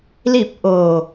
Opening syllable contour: falling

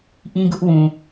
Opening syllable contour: high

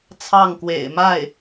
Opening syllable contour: falling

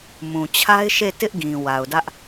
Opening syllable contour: low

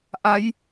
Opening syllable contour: rising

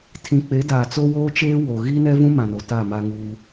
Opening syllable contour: low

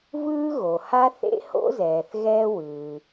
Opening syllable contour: high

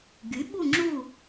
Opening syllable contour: rising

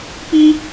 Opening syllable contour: high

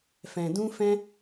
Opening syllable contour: low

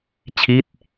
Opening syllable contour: falling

